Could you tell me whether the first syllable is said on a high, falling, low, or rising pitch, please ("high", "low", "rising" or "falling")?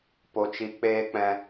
high